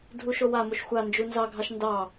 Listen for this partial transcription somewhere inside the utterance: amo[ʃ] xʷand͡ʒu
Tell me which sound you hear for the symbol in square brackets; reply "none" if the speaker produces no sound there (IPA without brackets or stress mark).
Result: ʃ